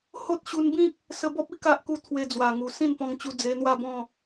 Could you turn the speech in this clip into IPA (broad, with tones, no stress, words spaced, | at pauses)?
ho˦t̚ ɕu˧nbĩ˦k̚ | sə˧bɔ˦p̚i˦ ka˦ʔku˦ t̪ʰwe˧d͡zwa˨˩ŋu˨˩ sĩ˥˧npɔ̃˧ŋt͡ɕu˧ d͡ze˧n̪wa˥˧bɔ̃˥˧